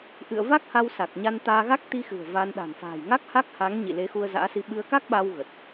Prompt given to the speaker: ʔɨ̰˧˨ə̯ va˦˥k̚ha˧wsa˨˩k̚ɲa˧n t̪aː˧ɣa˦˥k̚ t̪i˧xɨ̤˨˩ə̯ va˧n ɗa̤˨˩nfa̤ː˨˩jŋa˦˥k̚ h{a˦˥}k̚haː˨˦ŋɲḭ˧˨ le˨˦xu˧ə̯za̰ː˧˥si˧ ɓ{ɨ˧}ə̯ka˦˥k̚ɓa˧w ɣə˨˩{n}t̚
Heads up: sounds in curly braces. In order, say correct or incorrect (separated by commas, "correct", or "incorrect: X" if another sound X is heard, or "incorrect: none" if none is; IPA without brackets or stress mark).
correct, correct, incorrect: none